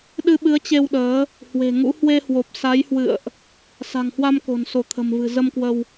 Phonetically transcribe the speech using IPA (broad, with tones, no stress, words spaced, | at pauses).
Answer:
ɗɨ˧ɓɨ˨˦ə̯t͡ɕe˧wɗəː˨˦ | hwe̤˨˩ŋṵ˧˥ hwe˧hwo˨˩p̚ sa˨˦jhwɨ̰˧˨ə̯ʔ | sa̤˨˩ŋhwa˧mko̤˨˩n so˧˩t̪ʰə̤˨˩mvɨ̤˨˩ zə˧mkwə˧w